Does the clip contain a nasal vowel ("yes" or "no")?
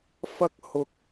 no